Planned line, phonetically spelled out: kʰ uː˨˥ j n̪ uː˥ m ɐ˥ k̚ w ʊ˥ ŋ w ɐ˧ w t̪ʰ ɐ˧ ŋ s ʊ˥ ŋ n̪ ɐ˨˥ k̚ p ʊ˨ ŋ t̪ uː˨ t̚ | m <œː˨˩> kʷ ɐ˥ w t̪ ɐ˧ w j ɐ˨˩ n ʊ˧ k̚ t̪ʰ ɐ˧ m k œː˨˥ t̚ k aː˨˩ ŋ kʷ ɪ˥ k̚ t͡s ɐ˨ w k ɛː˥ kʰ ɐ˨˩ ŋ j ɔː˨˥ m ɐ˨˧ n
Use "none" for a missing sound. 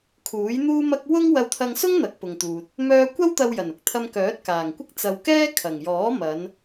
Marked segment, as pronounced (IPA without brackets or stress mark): œː˧